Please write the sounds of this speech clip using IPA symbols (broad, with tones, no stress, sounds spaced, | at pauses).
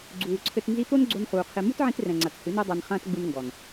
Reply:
ɡ͡ǀ uː˨ ǀʰ ɘ˧ t n z i˧ t̪ o˦ n ɡ͡ǀ o˧ n χ uː˧ qʰ e˦ m u˦ t ʕ ĩ˧ t r ɛ̃˨ ŋ͡ǀ a˨ t h ɨ˨˦ n e˦ dˤ a˧ n χ ɐ̃ː˦ t ɡ͡b u˧ n ŋ ɡ ɔ˨ n